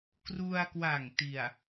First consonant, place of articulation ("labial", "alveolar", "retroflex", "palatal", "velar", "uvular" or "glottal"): velar